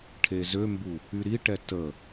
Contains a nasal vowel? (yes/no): no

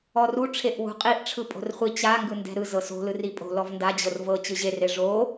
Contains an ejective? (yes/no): yes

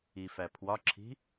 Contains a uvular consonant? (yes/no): no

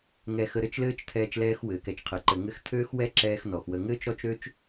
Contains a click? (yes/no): yes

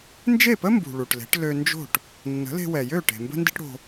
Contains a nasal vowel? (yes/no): no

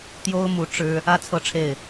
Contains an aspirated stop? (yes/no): yes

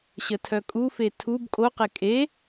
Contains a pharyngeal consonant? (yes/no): no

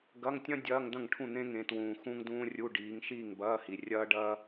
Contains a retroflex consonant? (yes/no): yes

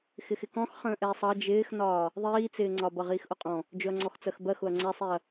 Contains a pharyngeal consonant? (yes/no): no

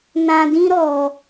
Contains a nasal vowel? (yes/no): yes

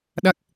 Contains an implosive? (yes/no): yes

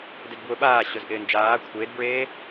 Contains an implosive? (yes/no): yes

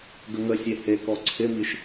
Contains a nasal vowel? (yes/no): no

